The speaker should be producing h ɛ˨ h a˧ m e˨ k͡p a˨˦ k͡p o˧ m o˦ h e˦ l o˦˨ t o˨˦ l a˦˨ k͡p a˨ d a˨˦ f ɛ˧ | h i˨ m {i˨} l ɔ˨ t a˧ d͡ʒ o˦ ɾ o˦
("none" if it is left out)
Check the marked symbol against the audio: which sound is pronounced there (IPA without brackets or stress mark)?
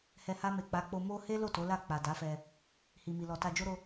i˨